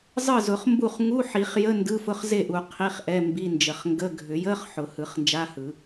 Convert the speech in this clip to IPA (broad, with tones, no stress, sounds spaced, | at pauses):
zˤ ɯ˥˩ z ʊ˨˩˦ χ m b u˥˩ χ ŋ u˧˥˧ ħ i˨˩˦ χ j ə˧˥˧ n d ɯ˧˥˧ f ʊ˧˥˧ χ z e˥˩ ʔ u˨˩˦ qʰ i˧˥˧ χ ʔ ɛ˧˥˧ m b i˧˥˧ n d͡ʒ ə˨˩˦ χ ŋ ɡ ə˧˥˧ ɡʱ ʏ˨˩˦ j ə˧˥˧ χ ħ ʊ˨˩˦ h ɯ˨˩˦ χ n d͡ʒ a˧˥˧ h ɯ˨˩˦